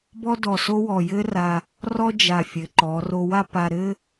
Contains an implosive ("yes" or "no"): no